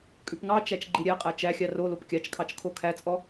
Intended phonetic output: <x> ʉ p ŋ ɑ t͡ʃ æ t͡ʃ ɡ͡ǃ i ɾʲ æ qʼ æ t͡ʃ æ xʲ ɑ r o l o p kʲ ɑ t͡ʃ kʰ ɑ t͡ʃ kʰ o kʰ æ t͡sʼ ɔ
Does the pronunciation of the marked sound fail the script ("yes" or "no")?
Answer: yes